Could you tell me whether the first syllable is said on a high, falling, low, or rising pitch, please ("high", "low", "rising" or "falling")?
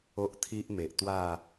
high